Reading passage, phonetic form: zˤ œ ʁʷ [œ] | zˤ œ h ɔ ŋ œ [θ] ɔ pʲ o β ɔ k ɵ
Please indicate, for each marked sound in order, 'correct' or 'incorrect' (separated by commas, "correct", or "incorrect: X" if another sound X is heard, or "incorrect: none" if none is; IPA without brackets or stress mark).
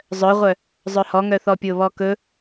correct, correct